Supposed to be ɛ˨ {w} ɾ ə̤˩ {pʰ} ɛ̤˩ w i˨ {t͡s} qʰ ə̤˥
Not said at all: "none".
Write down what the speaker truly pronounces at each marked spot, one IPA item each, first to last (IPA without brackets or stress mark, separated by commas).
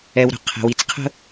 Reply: w, qʰ, t͡s